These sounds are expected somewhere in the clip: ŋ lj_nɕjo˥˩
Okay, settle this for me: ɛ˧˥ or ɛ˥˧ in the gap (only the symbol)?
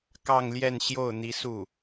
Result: ɛ˥˧